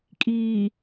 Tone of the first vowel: low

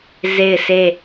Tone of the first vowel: falling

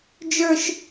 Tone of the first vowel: high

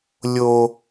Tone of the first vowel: low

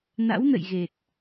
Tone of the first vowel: rising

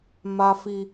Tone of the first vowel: high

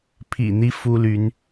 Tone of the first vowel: low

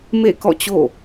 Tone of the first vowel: falling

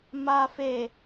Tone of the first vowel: low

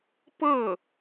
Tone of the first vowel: falling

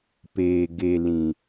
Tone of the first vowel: low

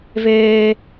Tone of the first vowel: high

